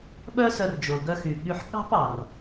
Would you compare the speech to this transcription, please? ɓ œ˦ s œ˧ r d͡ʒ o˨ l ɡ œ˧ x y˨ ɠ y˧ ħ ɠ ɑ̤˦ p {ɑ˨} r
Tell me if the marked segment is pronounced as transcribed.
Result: yes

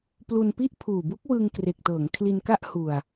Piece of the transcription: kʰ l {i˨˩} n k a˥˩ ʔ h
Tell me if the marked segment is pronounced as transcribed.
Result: no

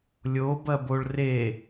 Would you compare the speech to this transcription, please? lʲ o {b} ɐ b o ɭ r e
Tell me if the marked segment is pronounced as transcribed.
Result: yes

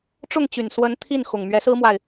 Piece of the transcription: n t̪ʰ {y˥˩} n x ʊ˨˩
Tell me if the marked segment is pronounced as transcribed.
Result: no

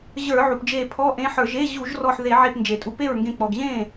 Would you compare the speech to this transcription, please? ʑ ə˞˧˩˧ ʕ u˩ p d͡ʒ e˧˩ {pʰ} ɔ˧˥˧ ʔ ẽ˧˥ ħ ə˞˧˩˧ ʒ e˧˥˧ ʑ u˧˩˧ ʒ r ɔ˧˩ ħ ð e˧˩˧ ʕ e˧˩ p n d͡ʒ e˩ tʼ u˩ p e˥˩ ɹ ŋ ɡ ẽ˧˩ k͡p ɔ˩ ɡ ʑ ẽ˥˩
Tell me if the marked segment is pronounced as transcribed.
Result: yes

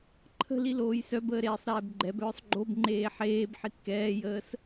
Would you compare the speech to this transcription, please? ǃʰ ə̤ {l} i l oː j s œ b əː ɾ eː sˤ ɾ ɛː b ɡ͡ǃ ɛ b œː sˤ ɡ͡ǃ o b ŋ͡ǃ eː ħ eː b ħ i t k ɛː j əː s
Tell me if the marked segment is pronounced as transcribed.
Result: yes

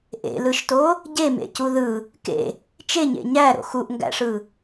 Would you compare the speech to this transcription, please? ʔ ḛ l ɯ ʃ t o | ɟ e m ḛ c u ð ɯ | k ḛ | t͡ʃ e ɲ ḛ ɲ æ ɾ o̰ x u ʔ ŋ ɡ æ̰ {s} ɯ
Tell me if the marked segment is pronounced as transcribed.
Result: no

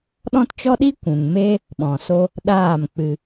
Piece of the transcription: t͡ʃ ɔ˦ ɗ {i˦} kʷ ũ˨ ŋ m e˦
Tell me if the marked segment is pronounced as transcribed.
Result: yes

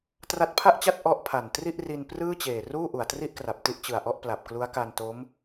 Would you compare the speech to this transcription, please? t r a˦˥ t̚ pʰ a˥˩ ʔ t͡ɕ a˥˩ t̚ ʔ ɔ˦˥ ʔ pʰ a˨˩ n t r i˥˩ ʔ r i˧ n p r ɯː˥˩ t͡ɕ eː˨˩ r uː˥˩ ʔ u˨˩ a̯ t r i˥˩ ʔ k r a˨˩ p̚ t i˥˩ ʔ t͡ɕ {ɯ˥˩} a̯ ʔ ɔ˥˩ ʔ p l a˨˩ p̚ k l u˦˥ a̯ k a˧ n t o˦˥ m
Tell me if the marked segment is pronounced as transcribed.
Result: no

